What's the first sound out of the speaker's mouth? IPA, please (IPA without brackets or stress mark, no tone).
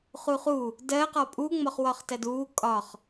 χ